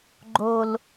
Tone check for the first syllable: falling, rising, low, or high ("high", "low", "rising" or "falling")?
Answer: high